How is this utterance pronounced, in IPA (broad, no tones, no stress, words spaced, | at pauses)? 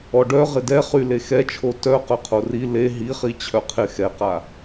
ɔɖœ ʁɪdɛχy lexɛt͡ʃʰo tœ qœqʰori le ɦiχi t͡ɕʰœqʰɪ xɛqa